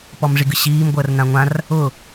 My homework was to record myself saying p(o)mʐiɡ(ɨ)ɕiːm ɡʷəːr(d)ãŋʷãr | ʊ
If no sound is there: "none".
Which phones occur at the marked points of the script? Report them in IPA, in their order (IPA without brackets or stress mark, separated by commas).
ɔ, ɨ, n